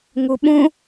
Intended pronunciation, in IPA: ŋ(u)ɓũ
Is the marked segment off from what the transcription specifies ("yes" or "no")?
no